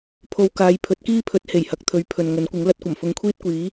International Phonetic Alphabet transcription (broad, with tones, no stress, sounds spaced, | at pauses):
pʰ o˧ w k aː˨˧ j pʰ ɵ˨˥ t̚ k iː˥ pʰ ɵ˨˥ t̚ h e˨˩ j h ɐ˨˥ k̚ t̪ʰ ɵ˨˧ ɥ pʰ ɵ˨ n ŋ ɵ˨˥ n kʷ ɪ˨˥ ŋ l ɐ˧ t̚ kʷ ɐ˨˩ m f ʊ˨˧ ŋ kʷʰ iː˥ t̚ kʷ iː˨˥